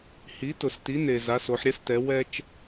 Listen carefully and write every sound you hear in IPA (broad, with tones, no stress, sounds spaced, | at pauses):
h i˨˦ t ʊ˨ s t i˨˦ n e˨ z a˨˦ s o˨˦ ħ ɾʲ ɛ˦ s t ɛ˨˦ w ɛ˦ t͡ʃ